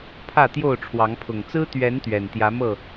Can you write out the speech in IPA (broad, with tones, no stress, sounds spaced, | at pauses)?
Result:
pʰ ä˥˨ t̪ j o˥˨ ʊ̯ ʈ͡ʂʰ w ɑ˨˦ ŋ pʰ ʊ˨˩ ŋ t͡s ɹ̩˦ t̪ ɥ ɛ˨˦ n t̪ ɥ ɛ˨˩ n t̪ j ä˨˦ m ɤ˥˨